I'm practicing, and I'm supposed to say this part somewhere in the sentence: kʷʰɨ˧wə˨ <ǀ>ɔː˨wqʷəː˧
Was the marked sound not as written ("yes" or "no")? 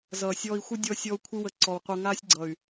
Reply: no